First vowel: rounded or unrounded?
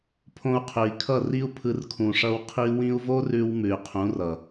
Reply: rounded